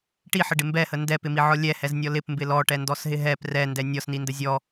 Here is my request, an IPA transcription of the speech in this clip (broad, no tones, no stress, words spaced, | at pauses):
ʈiħəɖɪ mbɛhə ndɛpɪmiʕɔ lʲɛhɛznʲɔ lɪpmbɪ lɔʈɛndɔsɦɪ ɦɛp rɛndɛ nʲɔsnində zʲɔ